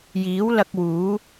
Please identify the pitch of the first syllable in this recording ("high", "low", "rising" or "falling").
rising